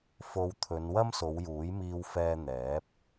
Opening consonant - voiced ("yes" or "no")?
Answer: no